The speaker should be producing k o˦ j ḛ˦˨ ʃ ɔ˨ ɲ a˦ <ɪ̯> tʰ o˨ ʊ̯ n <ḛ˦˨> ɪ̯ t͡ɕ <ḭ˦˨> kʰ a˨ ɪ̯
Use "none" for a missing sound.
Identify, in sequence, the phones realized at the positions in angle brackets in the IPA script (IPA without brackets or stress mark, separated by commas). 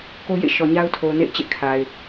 ʊ̯, ḛ˦˨, ḛ˦˨